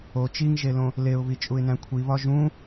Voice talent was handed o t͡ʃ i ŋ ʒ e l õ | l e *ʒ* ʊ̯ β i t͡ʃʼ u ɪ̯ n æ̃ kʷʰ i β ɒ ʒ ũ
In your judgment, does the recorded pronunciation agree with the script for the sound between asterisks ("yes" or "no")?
no